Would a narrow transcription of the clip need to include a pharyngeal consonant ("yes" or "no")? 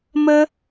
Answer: no